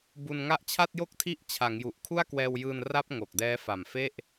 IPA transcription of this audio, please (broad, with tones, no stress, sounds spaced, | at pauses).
b u˧ n ŋ a˥˩ ʔ t͡ɕʰ a˥˩ t̚ j o˥˩ k̚ tʰ i˦˥ ʔ t͡ɕʰ a˩˦ ŋ j u˨˩ ʔ kʰ u˥˩ a̯ k w ɛː˧ w j ɯː˧ n r a˥˩ p̚ ŋ o˨˩ k̚ d ɛː˦˥ f a˨˩ m f e˥˩ ʔ